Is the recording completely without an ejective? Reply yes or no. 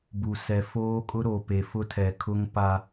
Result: no